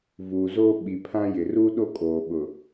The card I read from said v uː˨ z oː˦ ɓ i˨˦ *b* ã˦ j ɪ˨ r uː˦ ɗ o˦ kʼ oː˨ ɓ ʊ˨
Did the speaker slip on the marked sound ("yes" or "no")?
yes